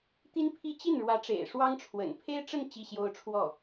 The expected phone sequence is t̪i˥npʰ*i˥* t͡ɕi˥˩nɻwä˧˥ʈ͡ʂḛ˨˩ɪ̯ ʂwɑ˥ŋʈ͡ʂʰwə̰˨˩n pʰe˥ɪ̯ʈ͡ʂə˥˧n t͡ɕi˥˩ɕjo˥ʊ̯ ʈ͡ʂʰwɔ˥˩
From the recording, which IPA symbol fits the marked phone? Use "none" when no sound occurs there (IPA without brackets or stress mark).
i˥